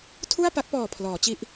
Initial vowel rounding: rounded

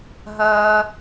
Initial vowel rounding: unrounded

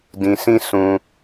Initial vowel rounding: unrounded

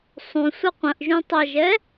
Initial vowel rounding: rounded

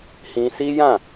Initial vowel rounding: unrounded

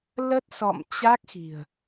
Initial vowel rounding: unrounded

